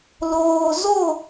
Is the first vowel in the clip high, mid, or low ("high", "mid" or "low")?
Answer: mid